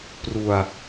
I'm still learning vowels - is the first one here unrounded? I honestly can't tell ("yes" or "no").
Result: no